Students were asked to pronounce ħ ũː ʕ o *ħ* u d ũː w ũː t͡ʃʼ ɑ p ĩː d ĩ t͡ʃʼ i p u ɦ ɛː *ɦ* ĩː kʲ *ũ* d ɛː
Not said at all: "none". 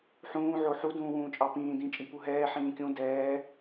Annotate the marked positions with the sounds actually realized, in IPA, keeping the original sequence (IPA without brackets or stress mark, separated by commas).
ħ, ħ, ũ